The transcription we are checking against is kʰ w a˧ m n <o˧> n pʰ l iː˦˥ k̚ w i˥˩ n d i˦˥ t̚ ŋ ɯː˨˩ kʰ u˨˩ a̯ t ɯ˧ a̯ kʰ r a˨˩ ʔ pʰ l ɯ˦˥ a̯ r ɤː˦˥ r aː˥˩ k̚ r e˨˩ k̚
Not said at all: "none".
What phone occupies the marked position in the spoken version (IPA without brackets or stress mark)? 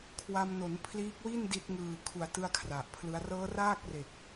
o˩˦